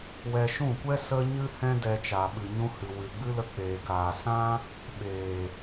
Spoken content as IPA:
w ɛ˧ ʃ ũ˦˨ kʷ ɛ˦ s ə˦ ɲ ɨ˦ h ɛ̃˦ d ɛ˧ t͡ʃ a˨ ɓ ɨ˨ ɲ ũ˧ h ɨ˨ w ɨ˨ ɡ͡b ɨ˦ l ə˧ k͡p eː˨ k aː˨ s ã˦ | ɓ eː˨

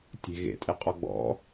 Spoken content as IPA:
tʲ e̤ ɣ ḛ tʼ e qʼ ɔ ɡ͡b ɔ̰

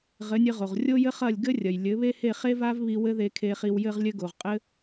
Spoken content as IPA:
ʁ ɘ˩˥ nʲ ɘ˧ ʁ o˩ ʁ rʲ o˥ j ɘ˥ χ ɐ˥˩ lʲ ɡ ɘ˥ rʲ ɐ˩ j lʲ ɘ˩˥ β e˥ h e˥˩ χ e˥ v a˥ v β i˧ w ɘ˥ ð e˧ kʰ e˧ χ i˧ w j ɘ˧ ʁ lʲ ɘ˥ ɡ o˩ ʁ qʼ ɘ˥

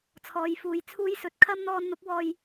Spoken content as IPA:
t͡sʰ ɔː˨ j f uː˨ j t͡sʰ uː˥ j s ɵ˧ t̚ kʰ ɐ˥ m n̪ ɔː˧ n n̪ ʊ˨˥ k̚ w ɔː˧ j

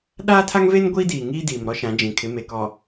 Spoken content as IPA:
ɗ aː˦ tʰ a˦ ŋ v e˦ n ɡʷ iː˦ d iː˨ ŋ iː˦ d iː˨ m ɾ ɔ˦ ʃ ã˨˦ d͡ʒ ĩ˨ kʰ ɪ˨˦ m e˨ k ɔ˨

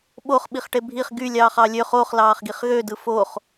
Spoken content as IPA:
ɓ o χ ɓ i χ ʈ e bʱ i χ ɡ y lʲ ɑː χ ɑ lʲ ø χ o χ l ɑː χ ɡ i χ ɣ ø d ɯ f o χ

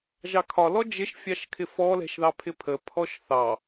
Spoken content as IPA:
ʒ ɑ kʰ ɒ l ɔ d͡ʒ ɪ ʃ fʲ ɑ ʃ kʰ ɪ f ɔ l ɛ̤ ʃ ð ɑ pʰ ɪ pʰ ə pʰ ɔ ʃ θ ɑ

